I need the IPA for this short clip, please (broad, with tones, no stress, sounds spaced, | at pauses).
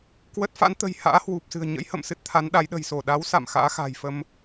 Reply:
k w ə˦˥ t̚ f a̰˧˥ n t̪ ə̤˨˩ j h a̰ː˧˥ h w u˨˩ p̚ s ɨ̤˨˩ ə̯ ɲ ə̰˧˥ j h ə̰˧˨ m s ɨ˦˥ t̚ t̪ʰ a˨˦ n ɗ a˨˦ j ɗ ə̤˨˩ j s o˧˩ ɗ a˨˦ w s a̰˧˨ m x a̰ː˧˥ x a̤˨˩ j f ə˧ m